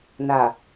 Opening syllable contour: low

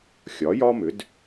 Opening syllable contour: rising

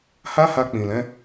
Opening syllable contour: high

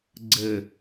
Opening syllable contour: low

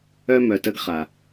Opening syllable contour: high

